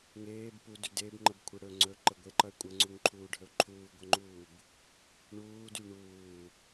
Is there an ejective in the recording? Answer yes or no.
yes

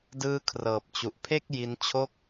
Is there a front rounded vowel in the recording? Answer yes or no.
no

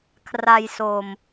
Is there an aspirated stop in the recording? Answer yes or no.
yes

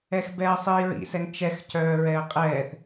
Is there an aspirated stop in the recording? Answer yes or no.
no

